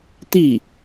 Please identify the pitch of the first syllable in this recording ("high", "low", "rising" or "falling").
falling